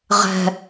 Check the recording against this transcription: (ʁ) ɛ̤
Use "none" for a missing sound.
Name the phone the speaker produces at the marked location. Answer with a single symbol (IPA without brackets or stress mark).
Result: ʁ